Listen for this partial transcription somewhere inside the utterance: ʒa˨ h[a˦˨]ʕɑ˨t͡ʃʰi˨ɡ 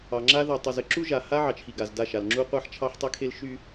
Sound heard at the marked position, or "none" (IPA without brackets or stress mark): a˦